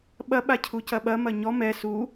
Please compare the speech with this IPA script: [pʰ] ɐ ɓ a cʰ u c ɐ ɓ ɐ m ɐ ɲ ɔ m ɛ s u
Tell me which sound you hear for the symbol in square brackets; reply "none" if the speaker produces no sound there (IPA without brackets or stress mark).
ɓ